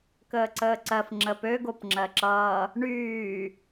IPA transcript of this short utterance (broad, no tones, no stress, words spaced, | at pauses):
kəːǀəːǀɜf ŋ͡ǁəpø ɡopŋ͡ǁɜǁʌː | ɳyː